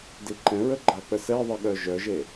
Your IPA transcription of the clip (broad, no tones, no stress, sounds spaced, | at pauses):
d i ǃ ɛ̃ ɹ ə ɡ͡ǃ a k͡p ə s ɛ ðˤ i ɠ œ ʒ œ ʒ e